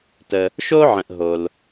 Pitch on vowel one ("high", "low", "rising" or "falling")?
low